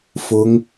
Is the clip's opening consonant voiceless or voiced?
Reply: voiceless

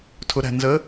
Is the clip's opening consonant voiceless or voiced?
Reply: voiceless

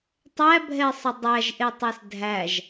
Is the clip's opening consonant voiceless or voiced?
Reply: voiceless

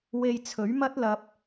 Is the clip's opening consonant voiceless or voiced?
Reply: voiced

